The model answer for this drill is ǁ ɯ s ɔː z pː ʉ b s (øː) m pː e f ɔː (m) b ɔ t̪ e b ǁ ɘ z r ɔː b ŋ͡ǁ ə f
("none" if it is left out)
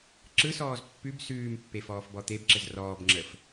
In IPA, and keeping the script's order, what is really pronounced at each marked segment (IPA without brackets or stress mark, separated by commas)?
ʉː, f